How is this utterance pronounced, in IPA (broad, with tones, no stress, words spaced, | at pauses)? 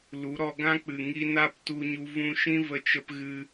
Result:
lu˨˦ ɾɔ˧ɡã˦k͡pɨ˨ ŋi˧ na˦p tu˧ɲu˧ vũ˧ ʃĩ˦və˧t͡ʃə˧p ɣɨ˧